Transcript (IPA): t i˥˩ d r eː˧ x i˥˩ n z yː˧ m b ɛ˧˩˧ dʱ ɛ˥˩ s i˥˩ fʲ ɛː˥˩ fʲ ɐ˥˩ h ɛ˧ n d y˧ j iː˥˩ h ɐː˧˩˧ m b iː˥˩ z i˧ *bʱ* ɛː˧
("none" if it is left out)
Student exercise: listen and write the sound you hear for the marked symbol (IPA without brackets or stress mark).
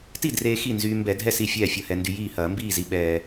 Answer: ɓ